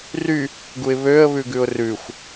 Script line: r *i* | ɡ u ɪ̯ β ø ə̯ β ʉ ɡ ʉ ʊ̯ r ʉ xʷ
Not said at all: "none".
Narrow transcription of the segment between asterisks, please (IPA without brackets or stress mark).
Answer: y